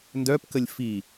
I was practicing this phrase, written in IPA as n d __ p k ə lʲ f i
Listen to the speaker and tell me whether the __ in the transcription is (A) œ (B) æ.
A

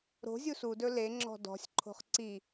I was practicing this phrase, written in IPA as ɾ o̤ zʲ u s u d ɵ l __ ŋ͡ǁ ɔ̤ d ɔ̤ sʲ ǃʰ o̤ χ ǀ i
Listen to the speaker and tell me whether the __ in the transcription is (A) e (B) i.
A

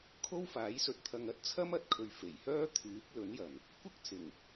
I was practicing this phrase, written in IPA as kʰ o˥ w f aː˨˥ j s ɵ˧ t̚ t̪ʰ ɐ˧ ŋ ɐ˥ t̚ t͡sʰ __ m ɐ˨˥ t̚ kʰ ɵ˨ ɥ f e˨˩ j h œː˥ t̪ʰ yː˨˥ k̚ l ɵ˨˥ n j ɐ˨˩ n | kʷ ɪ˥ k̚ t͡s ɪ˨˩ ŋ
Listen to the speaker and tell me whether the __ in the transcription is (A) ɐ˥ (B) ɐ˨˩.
A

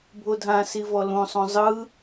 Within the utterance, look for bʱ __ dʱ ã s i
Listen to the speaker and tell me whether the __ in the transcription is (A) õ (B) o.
B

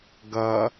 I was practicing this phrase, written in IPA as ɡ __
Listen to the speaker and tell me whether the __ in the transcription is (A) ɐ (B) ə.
A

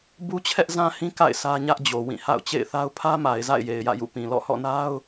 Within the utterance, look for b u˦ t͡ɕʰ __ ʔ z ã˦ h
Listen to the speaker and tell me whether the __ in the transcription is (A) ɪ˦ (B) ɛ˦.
B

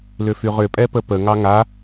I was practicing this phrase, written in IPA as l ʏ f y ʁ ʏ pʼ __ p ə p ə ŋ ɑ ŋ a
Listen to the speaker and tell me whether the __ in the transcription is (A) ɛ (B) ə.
A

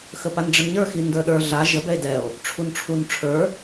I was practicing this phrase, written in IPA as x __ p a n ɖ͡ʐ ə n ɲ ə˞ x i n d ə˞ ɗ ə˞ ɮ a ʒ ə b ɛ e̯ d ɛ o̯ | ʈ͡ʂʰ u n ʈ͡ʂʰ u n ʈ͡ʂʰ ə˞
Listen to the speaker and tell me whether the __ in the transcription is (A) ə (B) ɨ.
A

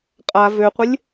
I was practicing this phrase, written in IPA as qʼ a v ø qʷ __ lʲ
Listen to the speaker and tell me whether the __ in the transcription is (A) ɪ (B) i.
A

